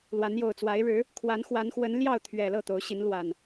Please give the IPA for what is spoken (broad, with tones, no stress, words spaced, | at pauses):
lwa˨˦njo˨˩ʊ̯t͡swa˨˦ɪ̯ ɻɻ̩˨˦ | kʰwa˨˦nxwa˨˦nxwə˨˦n ljɑ˥˨ʊ̯ t̪ʰɥɛ˨˩ lɤ˥˨t̪o˨˦ʊ̯ɕi˨˦n lwa˨˩n